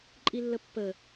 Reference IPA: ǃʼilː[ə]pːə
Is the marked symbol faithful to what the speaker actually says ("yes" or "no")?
yes